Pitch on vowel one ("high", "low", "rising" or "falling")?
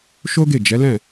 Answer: high